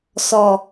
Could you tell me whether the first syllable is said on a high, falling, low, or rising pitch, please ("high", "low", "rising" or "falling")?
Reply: low